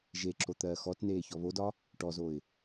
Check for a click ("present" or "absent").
present